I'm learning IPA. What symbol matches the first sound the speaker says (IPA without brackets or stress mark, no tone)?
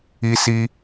i